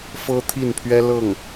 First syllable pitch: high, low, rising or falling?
high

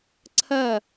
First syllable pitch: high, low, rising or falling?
falling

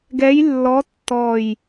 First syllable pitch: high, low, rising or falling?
rising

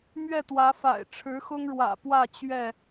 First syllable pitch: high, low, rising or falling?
falling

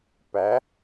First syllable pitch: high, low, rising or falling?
rising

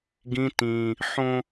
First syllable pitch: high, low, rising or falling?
high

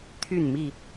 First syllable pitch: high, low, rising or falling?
falling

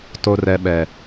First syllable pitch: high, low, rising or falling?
low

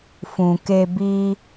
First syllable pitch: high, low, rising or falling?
low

